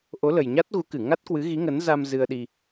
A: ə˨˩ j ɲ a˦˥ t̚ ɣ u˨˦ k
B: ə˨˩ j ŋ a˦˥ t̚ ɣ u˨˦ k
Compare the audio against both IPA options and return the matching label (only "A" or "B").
A